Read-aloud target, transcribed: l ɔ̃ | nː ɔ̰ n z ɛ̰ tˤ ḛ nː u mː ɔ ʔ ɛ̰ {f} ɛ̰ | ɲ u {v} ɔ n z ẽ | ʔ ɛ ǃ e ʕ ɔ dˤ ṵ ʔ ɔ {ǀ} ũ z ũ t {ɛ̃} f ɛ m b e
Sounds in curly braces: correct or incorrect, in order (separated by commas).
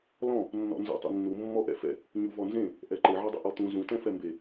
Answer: correct, correct, incorrect, correct